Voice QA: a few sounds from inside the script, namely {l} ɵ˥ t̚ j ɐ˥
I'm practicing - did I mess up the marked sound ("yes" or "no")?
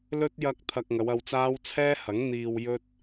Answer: no